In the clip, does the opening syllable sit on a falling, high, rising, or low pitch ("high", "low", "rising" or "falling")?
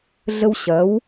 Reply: high